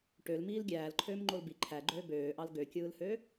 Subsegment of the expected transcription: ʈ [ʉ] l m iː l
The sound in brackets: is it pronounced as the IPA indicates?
no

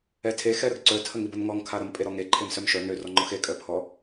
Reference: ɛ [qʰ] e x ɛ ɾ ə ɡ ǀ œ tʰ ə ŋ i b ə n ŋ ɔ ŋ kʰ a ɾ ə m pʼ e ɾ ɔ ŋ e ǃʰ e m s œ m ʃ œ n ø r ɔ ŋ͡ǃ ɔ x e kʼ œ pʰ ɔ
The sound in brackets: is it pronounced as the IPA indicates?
no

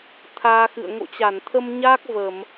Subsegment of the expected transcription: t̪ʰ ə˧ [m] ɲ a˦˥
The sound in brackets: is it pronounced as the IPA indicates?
yes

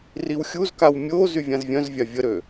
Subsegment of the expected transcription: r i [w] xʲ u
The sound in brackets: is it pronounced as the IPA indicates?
yes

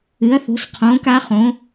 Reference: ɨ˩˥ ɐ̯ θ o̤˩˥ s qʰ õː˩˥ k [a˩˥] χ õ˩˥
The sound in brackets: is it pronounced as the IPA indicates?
no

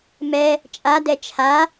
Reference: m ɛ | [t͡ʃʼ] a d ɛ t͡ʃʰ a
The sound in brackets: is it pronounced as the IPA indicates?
yes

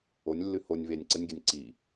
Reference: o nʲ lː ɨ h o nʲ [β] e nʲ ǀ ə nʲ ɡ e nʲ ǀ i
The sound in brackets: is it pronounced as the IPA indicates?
yes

